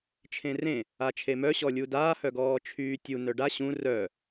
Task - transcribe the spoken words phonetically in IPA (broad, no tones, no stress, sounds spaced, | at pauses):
t͡ʃʰ ẽ r ẽ | a t͡ʃʰ e m œ ɕ ɔ lʲ u d aː h œ ɡ ɔː t͡ʃʰ yː tʲ u n œ ɖ a ɕ ũ r œ